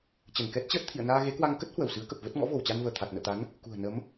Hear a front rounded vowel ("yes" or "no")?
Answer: no